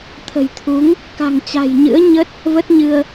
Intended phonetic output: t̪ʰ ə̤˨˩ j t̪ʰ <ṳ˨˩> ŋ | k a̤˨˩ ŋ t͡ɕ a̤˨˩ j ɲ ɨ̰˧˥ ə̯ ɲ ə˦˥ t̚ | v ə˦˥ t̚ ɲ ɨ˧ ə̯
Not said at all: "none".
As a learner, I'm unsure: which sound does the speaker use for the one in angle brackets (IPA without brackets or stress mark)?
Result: u˨˦